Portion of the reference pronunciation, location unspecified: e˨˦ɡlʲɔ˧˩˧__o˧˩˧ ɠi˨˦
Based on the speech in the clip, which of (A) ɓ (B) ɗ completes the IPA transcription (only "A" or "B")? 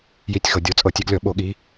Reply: A